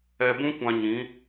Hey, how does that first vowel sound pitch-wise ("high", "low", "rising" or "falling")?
low